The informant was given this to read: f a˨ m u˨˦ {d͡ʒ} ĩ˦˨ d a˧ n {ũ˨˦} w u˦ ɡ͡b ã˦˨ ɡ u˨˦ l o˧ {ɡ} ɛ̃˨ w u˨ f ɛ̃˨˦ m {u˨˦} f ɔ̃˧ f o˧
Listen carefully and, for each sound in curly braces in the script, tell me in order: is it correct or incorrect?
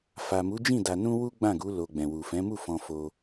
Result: correct, incorrect: ũ˦, incorrect: ɡ͡b, incorrect: u˦˨

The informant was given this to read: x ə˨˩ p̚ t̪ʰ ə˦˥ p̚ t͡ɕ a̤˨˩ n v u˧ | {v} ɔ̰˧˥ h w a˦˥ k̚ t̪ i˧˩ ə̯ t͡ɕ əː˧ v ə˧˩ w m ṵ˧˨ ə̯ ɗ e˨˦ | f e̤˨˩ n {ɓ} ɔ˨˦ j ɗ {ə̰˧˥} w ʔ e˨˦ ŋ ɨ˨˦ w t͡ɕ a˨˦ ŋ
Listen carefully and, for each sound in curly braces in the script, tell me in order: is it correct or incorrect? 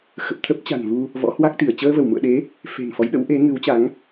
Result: correct, incorrect: f, correct

